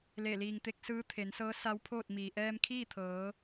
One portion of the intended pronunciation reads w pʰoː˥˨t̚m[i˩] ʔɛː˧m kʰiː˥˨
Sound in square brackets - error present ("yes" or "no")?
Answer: yes